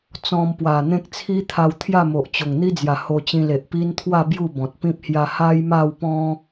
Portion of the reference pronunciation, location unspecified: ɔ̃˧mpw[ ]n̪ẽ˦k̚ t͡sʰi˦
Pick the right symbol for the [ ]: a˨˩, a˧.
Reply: a˨˩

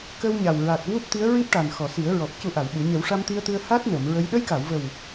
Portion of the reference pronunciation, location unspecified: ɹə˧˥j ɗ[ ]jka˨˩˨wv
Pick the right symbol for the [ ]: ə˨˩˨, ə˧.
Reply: ə˧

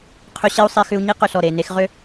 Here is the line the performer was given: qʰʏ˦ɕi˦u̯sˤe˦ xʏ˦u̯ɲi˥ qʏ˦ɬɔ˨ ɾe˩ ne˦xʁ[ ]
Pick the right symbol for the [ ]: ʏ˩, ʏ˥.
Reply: ʏ˥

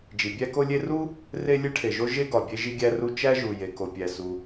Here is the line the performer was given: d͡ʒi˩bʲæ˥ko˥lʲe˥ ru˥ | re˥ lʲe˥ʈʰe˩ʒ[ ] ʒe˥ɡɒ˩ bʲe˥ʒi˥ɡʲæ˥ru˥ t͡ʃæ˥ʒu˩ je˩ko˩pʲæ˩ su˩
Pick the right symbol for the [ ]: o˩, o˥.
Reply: o˥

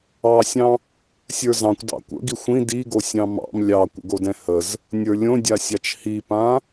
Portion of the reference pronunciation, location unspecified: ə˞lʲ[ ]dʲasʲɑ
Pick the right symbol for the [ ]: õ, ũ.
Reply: õ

